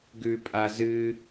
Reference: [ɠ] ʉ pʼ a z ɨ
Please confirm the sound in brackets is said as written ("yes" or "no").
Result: no